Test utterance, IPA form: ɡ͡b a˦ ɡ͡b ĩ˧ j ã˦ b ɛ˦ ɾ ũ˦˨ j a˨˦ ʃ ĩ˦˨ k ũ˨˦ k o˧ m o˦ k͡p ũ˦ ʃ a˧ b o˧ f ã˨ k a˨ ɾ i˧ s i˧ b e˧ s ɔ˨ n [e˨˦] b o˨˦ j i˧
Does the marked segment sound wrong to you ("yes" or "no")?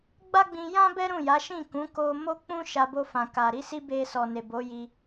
yes